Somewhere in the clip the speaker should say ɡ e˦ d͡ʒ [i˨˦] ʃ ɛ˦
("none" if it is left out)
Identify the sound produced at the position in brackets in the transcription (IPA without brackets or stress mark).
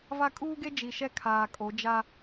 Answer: i˨